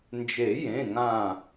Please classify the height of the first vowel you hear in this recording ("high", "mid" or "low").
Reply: mid